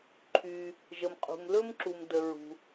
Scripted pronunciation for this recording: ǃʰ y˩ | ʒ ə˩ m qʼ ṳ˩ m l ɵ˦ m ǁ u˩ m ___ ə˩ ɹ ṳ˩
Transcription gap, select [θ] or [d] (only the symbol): d